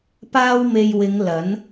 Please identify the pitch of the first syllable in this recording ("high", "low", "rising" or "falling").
high